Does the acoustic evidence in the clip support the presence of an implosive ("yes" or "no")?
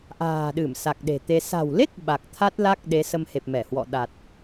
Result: yes